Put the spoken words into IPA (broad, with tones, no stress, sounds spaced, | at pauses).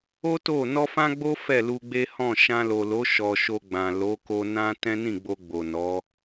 o˦ t o˦˨ n ɔ˧ f ã˦ ɡ͡b o˦ f ɛ˦˨ l u˧ ɡ͡b e˦ h ɔ̃˦˨ ʃ ã˧ l o˨ l o˨˦ ʃ ɔ˧ ʃ o˧ ɡ͡b ã˨ l o˨˦ k o˧ n ã˦ t ɛ̃˦ n ĩ˦˨ ɡ͡b o˧ ɡ͡b o˨ n ɔ˨˦